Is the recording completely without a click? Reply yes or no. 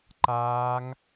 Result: no